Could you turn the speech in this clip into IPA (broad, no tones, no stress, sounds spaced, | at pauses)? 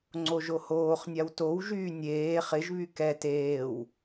ŋ͡ǀ o ʒ o h oː χ nʲ a w t o w ʒ yː nʲ eː χ ɪ ʒ β y k ɛ t eː w